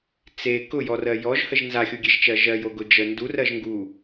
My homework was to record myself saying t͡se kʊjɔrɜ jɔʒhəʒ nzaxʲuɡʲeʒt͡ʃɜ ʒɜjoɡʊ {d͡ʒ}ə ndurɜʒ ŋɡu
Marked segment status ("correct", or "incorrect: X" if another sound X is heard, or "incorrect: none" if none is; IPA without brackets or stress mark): correct